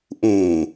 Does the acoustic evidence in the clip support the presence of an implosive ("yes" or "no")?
no